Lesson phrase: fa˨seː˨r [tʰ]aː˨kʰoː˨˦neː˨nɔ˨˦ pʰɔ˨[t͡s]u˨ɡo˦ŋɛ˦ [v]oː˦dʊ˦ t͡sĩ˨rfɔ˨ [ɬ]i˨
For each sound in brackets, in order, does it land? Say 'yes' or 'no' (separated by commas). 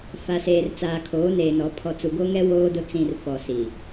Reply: no, yes, no, no